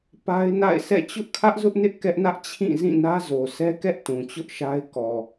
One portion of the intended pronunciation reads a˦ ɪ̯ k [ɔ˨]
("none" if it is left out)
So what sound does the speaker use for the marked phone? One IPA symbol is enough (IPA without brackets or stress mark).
ɔ˨